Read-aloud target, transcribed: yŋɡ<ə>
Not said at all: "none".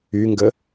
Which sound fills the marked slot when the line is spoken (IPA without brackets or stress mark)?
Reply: ə